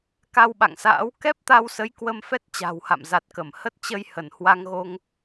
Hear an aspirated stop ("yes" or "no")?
no